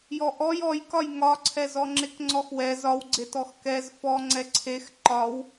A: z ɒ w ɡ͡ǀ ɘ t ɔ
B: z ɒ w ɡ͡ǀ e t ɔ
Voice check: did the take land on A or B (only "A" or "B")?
B